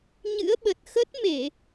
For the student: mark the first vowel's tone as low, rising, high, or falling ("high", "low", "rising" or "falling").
rising